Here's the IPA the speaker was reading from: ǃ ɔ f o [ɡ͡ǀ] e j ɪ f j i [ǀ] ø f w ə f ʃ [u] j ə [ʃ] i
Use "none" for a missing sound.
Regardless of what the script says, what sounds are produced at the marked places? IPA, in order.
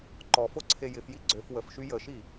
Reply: ǀʰ, ɡ͡ǀ, y, ʃ

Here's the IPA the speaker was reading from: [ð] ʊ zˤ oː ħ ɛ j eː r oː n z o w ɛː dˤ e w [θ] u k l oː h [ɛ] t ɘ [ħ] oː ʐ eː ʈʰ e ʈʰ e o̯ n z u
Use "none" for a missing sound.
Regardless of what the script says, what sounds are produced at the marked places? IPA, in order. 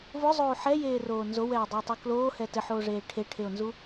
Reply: v, tˤ, ɛ, ħ

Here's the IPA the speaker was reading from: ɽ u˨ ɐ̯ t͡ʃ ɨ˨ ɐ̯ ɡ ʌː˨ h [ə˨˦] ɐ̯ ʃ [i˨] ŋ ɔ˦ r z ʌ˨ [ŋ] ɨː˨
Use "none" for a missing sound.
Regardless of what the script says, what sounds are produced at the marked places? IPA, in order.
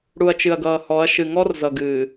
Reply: ɔ˨˦, ɨ˨, ɡ

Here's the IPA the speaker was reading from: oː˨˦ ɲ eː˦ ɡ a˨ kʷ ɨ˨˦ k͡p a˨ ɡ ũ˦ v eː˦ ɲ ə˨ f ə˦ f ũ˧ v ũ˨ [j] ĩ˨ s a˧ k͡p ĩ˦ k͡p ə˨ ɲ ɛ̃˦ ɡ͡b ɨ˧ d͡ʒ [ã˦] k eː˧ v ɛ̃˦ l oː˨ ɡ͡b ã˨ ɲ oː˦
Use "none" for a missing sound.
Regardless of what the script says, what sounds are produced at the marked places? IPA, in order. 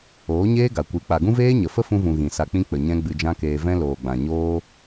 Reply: ɣ, ã˦

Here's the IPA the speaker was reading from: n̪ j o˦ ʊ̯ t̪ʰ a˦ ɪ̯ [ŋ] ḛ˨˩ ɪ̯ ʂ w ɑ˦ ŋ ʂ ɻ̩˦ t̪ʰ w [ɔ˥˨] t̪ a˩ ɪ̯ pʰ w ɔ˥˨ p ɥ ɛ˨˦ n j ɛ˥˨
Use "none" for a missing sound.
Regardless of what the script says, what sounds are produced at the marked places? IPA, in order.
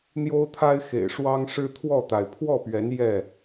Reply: x, ɔ˥˨

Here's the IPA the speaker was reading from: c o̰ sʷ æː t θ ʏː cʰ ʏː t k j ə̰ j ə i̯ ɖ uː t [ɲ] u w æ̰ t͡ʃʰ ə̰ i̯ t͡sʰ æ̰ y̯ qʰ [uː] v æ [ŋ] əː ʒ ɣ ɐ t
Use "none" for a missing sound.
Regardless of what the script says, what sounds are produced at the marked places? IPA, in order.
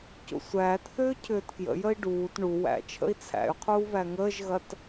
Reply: ɳ, uː, ŋ

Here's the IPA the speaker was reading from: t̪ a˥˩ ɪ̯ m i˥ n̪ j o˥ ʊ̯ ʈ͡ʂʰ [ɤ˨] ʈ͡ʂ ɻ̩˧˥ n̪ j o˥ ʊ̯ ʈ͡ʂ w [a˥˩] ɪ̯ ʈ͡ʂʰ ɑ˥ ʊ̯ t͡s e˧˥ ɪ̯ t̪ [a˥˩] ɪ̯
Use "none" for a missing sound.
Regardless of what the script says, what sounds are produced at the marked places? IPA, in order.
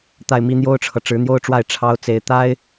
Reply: ɤ˨, a˥˩, a˥

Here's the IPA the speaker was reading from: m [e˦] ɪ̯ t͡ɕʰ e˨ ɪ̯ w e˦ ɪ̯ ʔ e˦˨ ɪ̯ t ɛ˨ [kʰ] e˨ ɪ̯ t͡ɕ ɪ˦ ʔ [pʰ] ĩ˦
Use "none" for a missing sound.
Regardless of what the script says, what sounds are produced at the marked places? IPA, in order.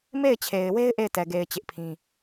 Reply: e˦˨, ɡ, pʰ

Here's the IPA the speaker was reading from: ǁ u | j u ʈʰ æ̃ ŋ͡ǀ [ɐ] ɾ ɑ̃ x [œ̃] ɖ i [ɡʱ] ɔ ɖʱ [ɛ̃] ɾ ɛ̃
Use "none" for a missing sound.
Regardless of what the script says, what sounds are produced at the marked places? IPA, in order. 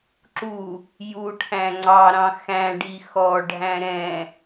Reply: ɑ, æ̃, x, æ̃

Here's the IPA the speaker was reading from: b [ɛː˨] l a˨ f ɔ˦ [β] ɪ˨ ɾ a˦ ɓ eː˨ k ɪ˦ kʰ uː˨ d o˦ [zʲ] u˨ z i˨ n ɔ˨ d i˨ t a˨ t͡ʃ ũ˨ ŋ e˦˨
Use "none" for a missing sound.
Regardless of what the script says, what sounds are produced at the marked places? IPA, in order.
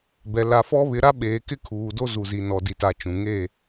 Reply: ɛ˨, β, z

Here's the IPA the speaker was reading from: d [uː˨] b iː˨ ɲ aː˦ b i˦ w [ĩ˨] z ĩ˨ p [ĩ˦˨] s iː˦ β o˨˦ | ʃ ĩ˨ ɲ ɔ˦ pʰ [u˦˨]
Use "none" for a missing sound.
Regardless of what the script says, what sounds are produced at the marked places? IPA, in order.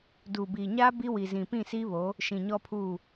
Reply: u˨, i˨, ĩ˦˨, u˦˨

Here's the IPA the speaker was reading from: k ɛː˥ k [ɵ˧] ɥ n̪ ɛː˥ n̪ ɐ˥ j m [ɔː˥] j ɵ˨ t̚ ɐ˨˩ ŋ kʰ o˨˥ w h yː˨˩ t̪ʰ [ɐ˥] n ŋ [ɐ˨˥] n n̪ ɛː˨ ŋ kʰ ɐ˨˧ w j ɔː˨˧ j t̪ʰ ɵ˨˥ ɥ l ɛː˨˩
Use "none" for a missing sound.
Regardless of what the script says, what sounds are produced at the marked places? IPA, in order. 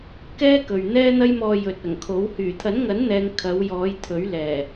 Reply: ɵ˨, ɔː˧, ɐ˨˥, ɐ˨˥

